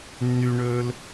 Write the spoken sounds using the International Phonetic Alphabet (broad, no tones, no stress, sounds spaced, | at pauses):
nː y ɳ ɵː l